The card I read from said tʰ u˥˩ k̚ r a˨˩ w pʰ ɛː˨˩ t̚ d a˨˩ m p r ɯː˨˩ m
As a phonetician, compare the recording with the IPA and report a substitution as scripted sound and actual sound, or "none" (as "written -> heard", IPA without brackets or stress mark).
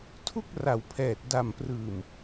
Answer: none